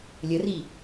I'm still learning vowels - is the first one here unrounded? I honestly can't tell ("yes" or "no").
yes